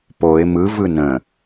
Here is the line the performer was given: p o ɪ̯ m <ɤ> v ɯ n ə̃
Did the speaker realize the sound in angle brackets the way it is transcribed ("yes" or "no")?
no